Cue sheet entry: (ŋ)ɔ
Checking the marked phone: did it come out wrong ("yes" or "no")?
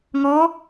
no